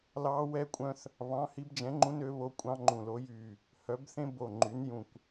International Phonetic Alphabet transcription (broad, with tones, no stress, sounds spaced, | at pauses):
l ɑ˦˥ w ɛ˦˥ kʷʼ œ̃˦˥ θ | β ɑ̃˨˥ h i˨˥ b d͡ʒ ɛ̃˨˥ ŋ͡ǃ ũ˦˥ n ø˨˥ β o˦˥ kʷʼ ɑ̃˦˥ ŋ͡ǃ ũ˧˩ l o˨˥ j y˧˩ | h œ˨˥ b θ ẽ˦˥ b o˧˩ ŋ͡ǃ y˨˥ n j ũ˧˩ kʷ